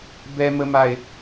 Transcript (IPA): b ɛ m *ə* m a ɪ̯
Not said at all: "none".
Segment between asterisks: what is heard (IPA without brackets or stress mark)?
ə